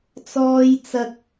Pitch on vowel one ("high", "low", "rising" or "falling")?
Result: high